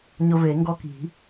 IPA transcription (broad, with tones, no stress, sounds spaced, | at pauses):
ɲ ʊ˧ v e˨˩˦ ŋ ɡ ɔ˧ k i̤˨˩˦